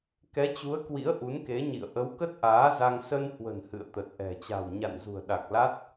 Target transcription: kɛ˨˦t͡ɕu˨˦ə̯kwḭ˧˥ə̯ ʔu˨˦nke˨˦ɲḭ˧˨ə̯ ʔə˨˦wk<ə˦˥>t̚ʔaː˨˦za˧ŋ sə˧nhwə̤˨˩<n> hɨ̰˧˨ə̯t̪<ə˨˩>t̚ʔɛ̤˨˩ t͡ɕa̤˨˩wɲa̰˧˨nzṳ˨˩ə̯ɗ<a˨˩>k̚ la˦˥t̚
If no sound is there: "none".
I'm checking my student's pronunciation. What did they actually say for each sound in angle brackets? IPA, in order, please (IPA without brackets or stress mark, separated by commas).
ə˦˥, n, ə˨˩, a˨˩